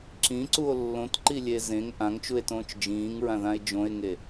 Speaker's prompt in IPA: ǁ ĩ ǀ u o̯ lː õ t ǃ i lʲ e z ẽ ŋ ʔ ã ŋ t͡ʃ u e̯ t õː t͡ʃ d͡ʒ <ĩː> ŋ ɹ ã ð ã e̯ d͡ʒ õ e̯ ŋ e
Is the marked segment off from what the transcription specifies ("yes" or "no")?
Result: no